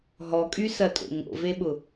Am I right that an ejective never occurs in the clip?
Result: no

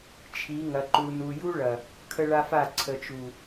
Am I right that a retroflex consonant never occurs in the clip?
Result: no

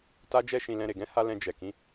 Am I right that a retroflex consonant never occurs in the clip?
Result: yes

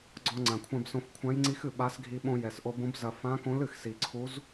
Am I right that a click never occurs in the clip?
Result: no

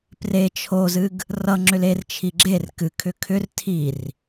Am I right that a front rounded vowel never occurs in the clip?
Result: no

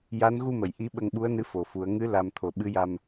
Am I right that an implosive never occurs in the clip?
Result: no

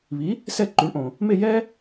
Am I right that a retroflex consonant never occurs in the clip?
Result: no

